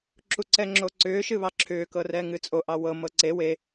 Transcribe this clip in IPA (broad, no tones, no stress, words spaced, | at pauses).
ǁuǀɛŋ͡ǁoǀʏː ʃɨβɑǁʰʏː kɤrɛŋɨt͡sʼo ʔɑwɤ mɤǀe we